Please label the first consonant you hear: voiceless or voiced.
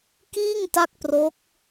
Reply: voiceless